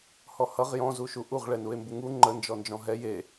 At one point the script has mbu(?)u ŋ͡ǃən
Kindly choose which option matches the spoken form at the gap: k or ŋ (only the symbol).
ŋ